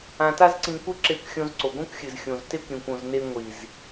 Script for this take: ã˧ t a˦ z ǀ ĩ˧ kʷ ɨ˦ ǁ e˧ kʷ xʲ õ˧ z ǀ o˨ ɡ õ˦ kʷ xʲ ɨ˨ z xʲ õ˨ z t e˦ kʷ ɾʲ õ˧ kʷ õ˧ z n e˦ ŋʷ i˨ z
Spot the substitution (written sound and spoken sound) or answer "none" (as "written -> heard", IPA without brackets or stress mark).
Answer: none